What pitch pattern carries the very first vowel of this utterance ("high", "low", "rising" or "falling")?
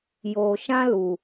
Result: low